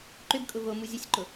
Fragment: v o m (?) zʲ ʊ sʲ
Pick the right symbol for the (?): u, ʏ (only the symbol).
u